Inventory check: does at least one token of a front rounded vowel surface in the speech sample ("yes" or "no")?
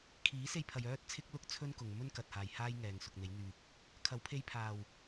yes